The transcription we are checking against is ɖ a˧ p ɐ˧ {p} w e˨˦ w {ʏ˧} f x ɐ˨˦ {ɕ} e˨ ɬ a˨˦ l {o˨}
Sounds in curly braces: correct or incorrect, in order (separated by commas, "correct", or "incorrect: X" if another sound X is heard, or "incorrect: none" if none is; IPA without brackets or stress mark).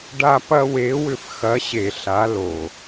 incorrect: none, correct, correct, correct